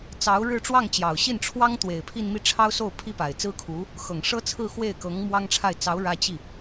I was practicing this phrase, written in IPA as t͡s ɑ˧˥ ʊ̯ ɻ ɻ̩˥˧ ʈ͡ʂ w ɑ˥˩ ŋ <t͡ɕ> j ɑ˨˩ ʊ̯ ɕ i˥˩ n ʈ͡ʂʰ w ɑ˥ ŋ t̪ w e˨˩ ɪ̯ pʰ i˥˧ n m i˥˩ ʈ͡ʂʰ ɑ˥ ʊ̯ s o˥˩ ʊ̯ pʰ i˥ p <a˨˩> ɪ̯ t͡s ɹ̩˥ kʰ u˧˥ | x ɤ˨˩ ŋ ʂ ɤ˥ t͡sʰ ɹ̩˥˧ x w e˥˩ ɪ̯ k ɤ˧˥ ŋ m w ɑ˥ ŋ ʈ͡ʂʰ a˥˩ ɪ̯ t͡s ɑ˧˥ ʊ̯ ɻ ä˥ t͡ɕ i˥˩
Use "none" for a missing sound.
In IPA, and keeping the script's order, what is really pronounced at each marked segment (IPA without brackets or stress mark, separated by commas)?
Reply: t͡ɕ, a˨˩